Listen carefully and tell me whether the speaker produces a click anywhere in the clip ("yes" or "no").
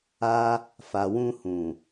no